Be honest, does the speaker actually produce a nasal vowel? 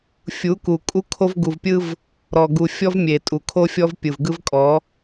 no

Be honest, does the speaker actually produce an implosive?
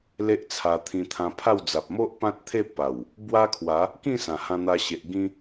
no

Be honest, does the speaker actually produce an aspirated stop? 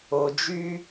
no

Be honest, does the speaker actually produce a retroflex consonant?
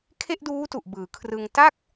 no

